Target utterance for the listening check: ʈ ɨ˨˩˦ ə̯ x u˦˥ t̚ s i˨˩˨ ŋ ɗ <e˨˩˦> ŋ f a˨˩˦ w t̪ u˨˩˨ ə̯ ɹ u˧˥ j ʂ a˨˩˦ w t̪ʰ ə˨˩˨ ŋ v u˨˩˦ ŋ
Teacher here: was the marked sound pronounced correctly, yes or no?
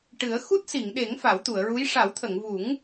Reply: yes